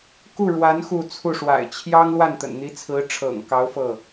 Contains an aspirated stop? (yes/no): yes